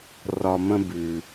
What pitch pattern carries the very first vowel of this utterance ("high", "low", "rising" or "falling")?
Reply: low